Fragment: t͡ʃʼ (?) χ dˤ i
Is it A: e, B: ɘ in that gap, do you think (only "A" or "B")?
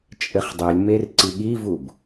B